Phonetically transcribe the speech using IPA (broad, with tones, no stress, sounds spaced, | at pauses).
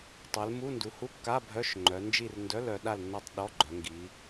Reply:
tˤ ɛ˩˧ l m u˧˥˧ n d u˩˧ h u˧˥˧ kː a˧˥˧ bʱ œ˧˥˧ ʃ ŋ͡ǃ œ˩˧ n d͡ʒ i˥˨ r n d œ˧˥˧ l œ˩˧ ɗ a˥˨ l nː a˥˨ tˤ ɗ ɔ˧˥˧ ɡ͡ǃ œ˩˧ ŋ ɡ i˩˧